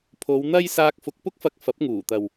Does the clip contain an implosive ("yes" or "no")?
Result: no